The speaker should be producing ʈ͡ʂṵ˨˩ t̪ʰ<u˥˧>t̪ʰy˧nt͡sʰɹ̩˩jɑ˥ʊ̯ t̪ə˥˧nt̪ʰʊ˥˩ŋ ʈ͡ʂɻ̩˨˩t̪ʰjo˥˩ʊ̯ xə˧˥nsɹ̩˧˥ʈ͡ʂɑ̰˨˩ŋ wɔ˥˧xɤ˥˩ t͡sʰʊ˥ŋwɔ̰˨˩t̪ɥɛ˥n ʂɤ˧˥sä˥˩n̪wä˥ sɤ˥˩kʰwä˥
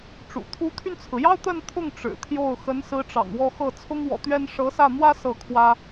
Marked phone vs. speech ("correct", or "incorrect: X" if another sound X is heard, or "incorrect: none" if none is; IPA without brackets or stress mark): incorrect: u˧˥